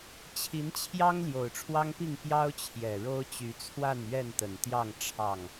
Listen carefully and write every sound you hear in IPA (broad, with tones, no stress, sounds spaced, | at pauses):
t͡ɕʰ i˨˦ n t͡ɕʰ j ɑ˦ ŋ l j o˨˩ ʊ̯ ʈ͡ʂʰ w ɑ˦ ŋ p i˥˨ ŋ p j ɑ˦ ʊ̯ t͡ɕʰ j ɛ˨˩ ɻ o˦ ʊ̯ t͡ɕ y˨˦ t͡sʰ w a˥˨ n ɥ ɛ˥˨ n t̪ ə˨˩ n t̪ j ɑ˥˨ ŋ ʈ͡ʂʰ ɑ˥˨ ŋ